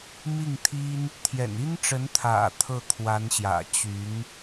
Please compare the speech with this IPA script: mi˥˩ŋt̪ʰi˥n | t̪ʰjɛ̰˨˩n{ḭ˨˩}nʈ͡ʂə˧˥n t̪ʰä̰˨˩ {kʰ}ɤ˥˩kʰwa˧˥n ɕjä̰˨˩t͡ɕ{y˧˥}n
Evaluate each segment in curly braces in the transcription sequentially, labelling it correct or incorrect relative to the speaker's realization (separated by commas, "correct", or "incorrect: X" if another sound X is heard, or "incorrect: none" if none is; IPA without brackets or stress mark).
incorrect: i˥, incorrect: t̪ʰ, correct